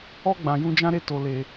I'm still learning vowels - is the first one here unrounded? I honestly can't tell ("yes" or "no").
no